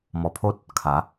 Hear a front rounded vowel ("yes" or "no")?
no